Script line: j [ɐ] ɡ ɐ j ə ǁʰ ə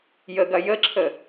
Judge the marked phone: incorrect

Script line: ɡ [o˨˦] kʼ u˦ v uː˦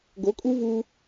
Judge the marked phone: correct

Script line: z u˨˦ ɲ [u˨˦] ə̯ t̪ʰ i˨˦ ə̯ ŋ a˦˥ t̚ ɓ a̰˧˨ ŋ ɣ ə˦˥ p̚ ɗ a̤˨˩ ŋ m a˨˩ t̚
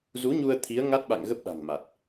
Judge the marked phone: incorrect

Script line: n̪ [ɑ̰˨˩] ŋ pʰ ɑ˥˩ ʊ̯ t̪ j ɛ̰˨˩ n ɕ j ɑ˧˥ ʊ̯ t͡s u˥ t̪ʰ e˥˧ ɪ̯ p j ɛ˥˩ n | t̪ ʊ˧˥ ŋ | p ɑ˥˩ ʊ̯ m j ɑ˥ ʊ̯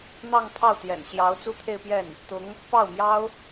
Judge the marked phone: incorrect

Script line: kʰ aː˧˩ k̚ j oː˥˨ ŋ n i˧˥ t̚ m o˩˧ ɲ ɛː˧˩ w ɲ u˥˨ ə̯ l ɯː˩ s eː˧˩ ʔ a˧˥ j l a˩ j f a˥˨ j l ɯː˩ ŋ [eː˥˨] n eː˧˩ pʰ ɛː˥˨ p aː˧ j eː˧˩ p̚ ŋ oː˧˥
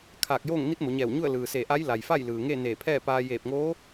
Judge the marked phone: incorrect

